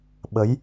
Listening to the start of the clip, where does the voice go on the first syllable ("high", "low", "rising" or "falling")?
rising